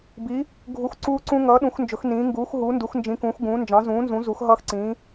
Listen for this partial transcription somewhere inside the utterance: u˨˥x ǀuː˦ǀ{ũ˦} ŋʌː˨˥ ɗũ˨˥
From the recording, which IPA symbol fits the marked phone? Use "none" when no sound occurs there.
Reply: ũ˦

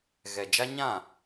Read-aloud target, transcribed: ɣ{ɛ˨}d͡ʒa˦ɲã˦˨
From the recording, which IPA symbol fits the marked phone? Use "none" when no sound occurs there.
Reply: ɛ˨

